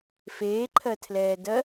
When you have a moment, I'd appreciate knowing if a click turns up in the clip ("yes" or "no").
yes